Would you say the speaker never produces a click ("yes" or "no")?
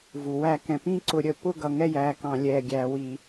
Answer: no